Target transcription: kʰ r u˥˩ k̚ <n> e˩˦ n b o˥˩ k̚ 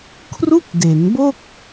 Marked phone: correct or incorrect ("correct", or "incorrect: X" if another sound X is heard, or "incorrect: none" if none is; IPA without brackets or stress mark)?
incorrect: d